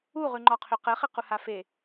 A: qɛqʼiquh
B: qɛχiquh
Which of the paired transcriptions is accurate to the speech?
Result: B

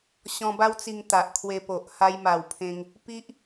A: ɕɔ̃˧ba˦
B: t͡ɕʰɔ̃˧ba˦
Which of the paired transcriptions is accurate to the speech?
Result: A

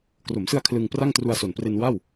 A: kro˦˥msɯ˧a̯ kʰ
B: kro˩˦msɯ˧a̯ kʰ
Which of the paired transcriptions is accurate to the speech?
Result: B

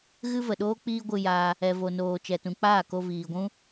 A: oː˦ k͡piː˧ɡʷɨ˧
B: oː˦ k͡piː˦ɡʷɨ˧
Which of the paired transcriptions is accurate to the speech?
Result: B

